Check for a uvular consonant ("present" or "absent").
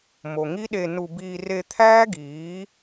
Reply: absent